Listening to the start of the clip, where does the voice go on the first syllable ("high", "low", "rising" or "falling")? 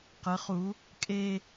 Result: rising